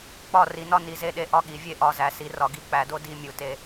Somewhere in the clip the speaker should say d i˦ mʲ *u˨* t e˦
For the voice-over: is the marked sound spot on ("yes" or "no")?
yes